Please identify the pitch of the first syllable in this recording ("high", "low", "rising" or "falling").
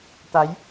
rising